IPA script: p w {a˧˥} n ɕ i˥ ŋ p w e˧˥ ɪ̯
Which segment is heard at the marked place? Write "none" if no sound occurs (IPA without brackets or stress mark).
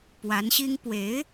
a˧˥